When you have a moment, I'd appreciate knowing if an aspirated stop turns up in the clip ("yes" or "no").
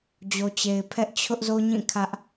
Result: yes